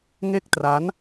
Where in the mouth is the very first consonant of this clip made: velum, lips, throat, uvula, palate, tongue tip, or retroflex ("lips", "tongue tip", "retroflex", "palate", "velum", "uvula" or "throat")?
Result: velum